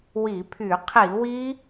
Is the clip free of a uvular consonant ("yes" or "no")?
no